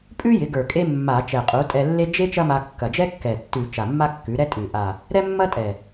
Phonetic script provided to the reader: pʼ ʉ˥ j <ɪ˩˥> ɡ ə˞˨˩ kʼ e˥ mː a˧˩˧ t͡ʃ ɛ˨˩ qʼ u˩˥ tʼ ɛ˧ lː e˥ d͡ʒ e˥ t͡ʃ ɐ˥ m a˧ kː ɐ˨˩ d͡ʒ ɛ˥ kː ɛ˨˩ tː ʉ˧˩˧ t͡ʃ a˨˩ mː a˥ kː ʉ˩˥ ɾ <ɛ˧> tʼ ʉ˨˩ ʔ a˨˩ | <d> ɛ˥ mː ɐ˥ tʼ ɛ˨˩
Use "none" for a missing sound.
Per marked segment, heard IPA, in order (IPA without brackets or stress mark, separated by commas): ɪ˩˥, ɛ˥, ɾ